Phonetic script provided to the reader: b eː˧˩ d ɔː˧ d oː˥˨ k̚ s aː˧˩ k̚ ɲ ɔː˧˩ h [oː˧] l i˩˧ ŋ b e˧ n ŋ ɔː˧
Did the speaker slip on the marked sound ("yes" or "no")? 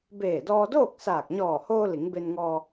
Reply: no